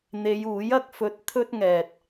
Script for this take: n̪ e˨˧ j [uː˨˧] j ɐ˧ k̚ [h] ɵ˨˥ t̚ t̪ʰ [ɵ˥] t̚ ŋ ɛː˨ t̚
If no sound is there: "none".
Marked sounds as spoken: uː˨˥, f, ɵ˥

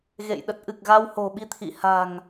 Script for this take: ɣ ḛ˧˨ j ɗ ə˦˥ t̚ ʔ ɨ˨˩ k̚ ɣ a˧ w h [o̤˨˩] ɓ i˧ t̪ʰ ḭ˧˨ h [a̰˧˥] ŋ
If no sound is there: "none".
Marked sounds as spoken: o̤˨˩, a̤˨˩

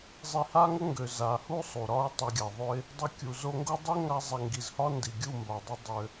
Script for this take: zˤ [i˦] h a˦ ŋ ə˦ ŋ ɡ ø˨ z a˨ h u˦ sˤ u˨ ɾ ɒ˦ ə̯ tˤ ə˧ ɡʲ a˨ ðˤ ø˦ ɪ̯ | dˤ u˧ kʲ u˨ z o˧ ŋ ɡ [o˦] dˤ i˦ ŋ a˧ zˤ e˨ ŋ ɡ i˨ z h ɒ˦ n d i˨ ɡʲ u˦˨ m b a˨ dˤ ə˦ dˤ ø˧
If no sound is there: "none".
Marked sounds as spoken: i˧, o˦

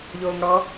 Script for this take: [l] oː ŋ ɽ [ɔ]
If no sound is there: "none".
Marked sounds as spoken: ʎ, ɔ

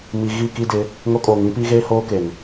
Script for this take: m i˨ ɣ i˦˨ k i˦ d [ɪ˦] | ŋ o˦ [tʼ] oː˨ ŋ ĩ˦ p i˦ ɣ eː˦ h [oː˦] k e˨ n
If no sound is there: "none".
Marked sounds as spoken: ɪ˨˦, kʼ, oː˦

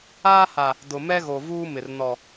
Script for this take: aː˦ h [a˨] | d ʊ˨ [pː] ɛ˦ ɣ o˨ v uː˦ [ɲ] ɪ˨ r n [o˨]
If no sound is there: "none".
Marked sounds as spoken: a˨, m, m, ɔ˨

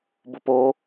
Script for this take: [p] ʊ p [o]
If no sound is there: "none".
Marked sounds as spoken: b, o

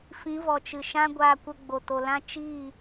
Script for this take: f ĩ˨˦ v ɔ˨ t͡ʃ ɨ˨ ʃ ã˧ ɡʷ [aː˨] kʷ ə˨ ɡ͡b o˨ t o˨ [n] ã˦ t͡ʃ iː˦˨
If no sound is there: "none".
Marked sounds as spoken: aː˨, l

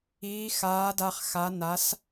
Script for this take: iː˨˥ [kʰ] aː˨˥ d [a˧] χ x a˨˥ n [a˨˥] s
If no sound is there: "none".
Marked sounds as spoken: x, a˧, a˨˥

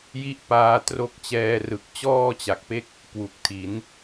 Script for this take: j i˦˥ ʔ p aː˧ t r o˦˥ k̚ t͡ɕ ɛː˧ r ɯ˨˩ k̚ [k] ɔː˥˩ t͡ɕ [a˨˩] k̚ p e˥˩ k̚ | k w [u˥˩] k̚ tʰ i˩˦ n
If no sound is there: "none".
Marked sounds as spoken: t͡ɕ, a˨˩, u˨˩

